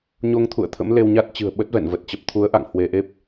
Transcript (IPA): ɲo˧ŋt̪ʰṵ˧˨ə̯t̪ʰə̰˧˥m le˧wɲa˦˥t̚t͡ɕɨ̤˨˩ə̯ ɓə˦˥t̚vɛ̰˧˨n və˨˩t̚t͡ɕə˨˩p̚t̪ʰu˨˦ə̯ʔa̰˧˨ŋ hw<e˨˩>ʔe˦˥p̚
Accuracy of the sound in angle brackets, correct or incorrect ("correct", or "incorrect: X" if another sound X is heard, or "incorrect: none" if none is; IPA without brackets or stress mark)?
incorrect: e˧